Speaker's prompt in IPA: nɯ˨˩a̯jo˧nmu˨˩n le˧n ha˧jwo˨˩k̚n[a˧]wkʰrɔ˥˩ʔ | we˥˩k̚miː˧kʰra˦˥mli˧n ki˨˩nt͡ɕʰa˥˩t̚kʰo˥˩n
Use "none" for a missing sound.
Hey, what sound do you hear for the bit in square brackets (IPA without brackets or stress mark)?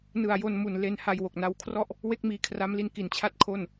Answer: a˧